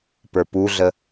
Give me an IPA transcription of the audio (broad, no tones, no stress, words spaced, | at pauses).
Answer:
pə˞puɮə